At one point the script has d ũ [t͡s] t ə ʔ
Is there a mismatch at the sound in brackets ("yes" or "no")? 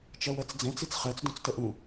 no